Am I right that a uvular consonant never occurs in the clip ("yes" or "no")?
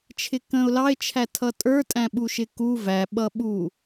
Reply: yes